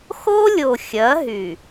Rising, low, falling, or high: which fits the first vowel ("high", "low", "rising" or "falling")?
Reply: high